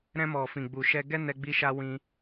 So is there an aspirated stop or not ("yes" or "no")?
no